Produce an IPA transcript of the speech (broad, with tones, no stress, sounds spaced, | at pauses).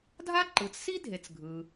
dʱ a˥ ǃ ɯ˩ t͡s s i˥ dʱ e˩ t͡s ɡʱ ɯ˩